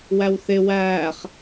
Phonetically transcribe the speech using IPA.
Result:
wæwθɪ wæːχ

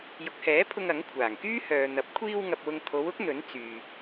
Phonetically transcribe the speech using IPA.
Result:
jʊ˨k̚hɛː˨˥pʰʊ˧ŋ ɐ˨˥ŋkʷʰaː˨˩ŋ kyː˥hœː˨n̪ɐ˨˥p̚ kʷʰiː˧wŋɐ˨p̚wʊ˨ŋ t̪ʰo˨˧wʊ˨˥k̚ n̪ɵ˨˥n t͡syː˨

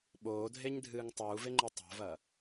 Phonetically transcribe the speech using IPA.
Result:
ɓoːdʱeɲdʱɨːŋ tˤuːveŋ͡ǃe tˤo̤vɐː

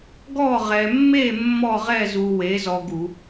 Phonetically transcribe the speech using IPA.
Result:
ɡɔ˥˧ʁɛ˧mːe˥˧ mːɔ˥˧ʁɛ˥˧ zu˧we˨˥ zɔ˧ɡu˧˩˧

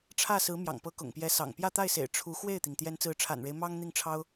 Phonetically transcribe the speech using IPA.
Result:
ʈ͡ʂʰä˥˩sɹ̩˧˥ mjɑ̰˨˩ŋpɤ˧˥ kʊ̰˨˩ŋpjɛ˧˥sɑ̰˨˩ŋ pjä˥˧t̪a˥˩ɪ̯sḛ˨˩ɪ̯ ʈ͡ʂʰu˧˥ xwe˥˩ɪ̯t̪i˩ŋ t̪jɛ˧˥nt͡sɹ̩˧˥ʈ͡ʂʰa̰˨˩nɻe˦ɪ̯ mɑ˥ŋ n̪i˥˩ŋʈ͡ʂʰɑ˥ʊ̯

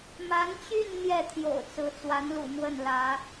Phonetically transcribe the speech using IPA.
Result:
ma˧˥nt͡ɕy˥˧n n̪jɛ˥˩t̪ʰjo̰˨˩ʊ̯t͡sɹ̩˧˥ t͡swa˧˥nlṵ˨˩ mwə˥˩nlä˧˥

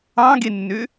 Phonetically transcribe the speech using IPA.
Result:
ɑ̃ɡenːø

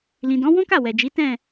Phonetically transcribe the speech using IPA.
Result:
lĩ˨dɔ̃˨˦ wɔ̃˦ka˦˨ wɛ˨d͡ʒi˨˦ tɛ̃˦˨

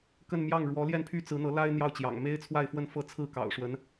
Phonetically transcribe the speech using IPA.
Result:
kə˥˧n mjɑ˥˩ŋ ɻwɔ˧˥ljɛ˥˩npʰy˥ t͡sɹ̩˧˥n̪ɤ˧˥la˥ɪ̯ n̪jɑ˥˩ʊ̯t͡ɕjɑ̰˨˩ŋ me˥ɪ̯t͡sʰwa˥˧ɪ̯fwə˥˧n fɤ˥˧t͡sʰɹ̩˥˩ kɑ̰˨˩ʊ̯ʂwə˧˥n

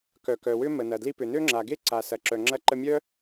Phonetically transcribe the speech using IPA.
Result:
kœ˩kœ˩wʏ˥ mə˩nɐ˩ dli˧pʏ˩ nø˥ŋ͡ǁa˩ɡe˥ ǀa˩ sɐ˩ǁœ˩ŋ͡ǁɐ˧ ǃə˧mʲœ˥

